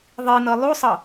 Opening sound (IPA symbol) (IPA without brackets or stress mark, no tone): ðˤ